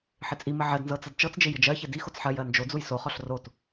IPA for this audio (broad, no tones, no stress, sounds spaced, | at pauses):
ħ ɪ t͡sʼ i m ɪ ʕ ɜ d n z ɤ t͡s ɤ d t͡ʃ ɤ t͡s d͡ʒ ɪ j ɪ d͡ʒ ɜ ç ɪ d i x o t͡s ħ ɜ j ɜ n d͡ʒ o d͡z u j s o χ ɔ ɬ r o t